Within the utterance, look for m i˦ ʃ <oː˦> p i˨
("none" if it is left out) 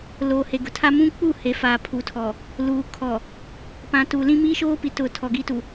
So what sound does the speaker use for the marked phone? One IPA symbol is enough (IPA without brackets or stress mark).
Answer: oː˦